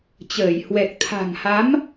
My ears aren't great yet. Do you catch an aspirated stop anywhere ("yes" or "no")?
yes